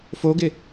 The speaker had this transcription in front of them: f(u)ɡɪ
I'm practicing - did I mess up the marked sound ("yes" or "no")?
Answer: yes